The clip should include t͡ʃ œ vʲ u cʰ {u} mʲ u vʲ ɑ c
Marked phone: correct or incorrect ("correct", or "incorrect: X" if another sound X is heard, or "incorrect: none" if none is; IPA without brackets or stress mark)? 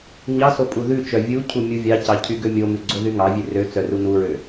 correct